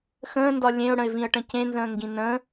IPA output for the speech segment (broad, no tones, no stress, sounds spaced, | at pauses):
x ə̃ː n d ɒ lʲ ẽ ʊ̯ ɽ ə̃ ɪ̯ v ĩ ə̯ ʈ ə̃ c ẽ n z ə̃ː ŋ ɡ ĩ n ə̃ː